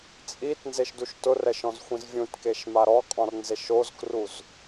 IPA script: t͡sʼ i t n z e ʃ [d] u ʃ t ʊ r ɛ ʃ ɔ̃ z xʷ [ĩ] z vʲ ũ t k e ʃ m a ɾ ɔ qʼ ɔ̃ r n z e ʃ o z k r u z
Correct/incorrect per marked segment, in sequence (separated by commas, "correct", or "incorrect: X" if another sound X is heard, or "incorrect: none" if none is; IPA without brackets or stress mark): correct, correct